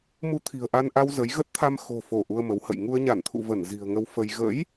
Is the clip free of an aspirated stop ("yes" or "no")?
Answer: no